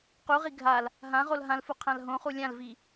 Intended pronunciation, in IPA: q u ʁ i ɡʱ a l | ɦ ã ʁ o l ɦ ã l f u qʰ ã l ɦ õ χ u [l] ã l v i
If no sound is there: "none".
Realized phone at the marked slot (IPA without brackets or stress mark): lʲ